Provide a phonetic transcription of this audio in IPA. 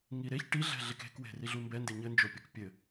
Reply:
ŋ i ɾ e ç ʈ i ɮ ɛ̤ ɮ e k e̤ k w e̤ r i ɮ u m b ɛ n d e ɲ ɘ n d͡ʒ o pʲ o k pʲ ɘ

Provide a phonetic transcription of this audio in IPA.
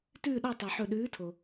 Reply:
t ʉː˥˨ ɗ ɔ˥˨ tˤ ø˩ ħ ɵ˧˩ ɗ ʉː˨˥ tʰ o˩

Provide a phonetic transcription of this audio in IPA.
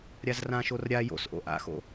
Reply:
ɾʲ a z r ã ʃ o r ɾʲ a j o̰ s ʔ o̰ ʔ a̰ x o̰

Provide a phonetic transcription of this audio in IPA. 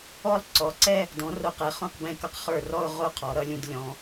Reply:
ɔ˥˧ lˠ ǀ ɔ˩˧ ǀ ɛ˥˧ | d ɔ̃˩˧ r o˧˩ q ɛ˩˧ χ õ˥˧ q b ɛ̃˥˧ k ʌ˥ q χ ə˞˧˩ r ɔ˥˧ ʊ̯ ʁ o˥˧ qʰ ɔ˩˧ ɾ ʌ˩˧ lʲ ũ˧ d lʲ ɔ̃˩˧

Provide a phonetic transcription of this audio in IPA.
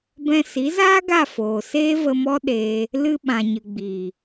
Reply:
b ɛ̃˧ s i˨˦ z aː˦ ɡ a˦˨ f oː˨ s eː˦ v ə˧ m ɔ˦ ɗ eː˧ | l ɨ˧ ɓ ã˨ ɲ ɨ˨ ɡ͡b iː˨

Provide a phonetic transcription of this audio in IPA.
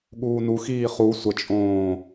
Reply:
ɠ uː n u x iː χ u sʷ ə t͡ʃʼ õː

